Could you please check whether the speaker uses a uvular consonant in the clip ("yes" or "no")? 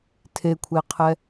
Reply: yes